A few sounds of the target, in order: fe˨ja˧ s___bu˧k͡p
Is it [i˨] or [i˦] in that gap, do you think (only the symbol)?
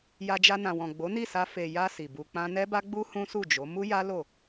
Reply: i˨